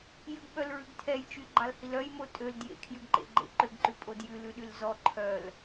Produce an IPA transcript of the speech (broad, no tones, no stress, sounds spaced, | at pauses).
j ʉ ɡ ɓ œ l ɹ ʉ ɡ tʰ ɛ j t͡ʃ y ɡ͡ǃ ɑ l h i l œ j m o tʼ ø l d j ḛ kʰ j ʉ ɡ ǃ ḛ ɡ͡ǃ ḛ ǃ ø ɡ ǃ ʉ pʼ o d j ʉ l ʉ ɗ y l z ɔ ǃʰ œ l